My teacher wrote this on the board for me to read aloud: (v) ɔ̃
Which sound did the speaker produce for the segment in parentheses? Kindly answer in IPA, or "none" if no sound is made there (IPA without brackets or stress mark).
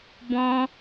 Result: b